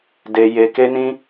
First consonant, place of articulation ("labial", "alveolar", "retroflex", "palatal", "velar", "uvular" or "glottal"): alveolar